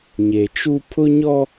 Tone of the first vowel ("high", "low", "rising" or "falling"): low